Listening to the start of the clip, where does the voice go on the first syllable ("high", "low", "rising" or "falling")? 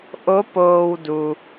rising